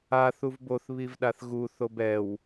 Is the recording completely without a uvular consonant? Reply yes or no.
yes